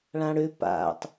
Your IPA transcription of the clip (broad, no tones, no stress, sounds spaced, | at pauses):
ɭ ã ɽ ʏ p a̰ tˤ